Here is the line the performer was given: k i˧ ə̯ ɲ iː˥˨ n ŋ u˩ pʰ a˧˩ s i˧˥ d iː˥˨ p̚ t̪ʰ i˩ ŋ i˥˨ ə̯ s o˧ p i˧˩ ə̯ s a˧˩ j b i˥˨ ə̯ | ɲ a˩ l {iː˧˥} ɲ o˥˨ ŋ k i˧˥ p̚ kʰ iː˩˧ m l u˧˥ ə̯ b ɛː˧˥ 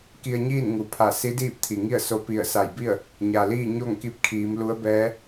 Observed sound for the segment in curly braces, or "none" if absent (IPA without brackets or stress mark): iː˥˨